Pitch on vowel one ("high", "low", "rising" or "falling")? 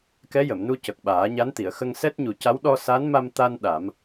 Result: rising